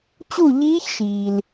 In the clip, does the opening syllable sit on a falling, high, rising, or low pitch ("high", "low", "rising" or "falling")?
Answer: falling